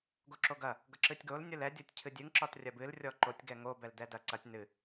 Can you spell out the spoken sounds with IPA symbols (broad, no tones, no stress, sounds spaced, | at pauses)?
ɡ o ǁ o ɡ ɐ | ɡ ʌ ǁ ɨ tʲ ɡ o l nʲ o l ɛ dʲ o tʲ cʰ ɨ dʲ ɨ ŋ ǁ ɒ t rʲ ɐ b ɨ l rʲ ɔ ǃ o tʲ ɡ ɛ ŋ o b ɛ l d ɛ d ɐ ǀ ɐ tʲ n ɨ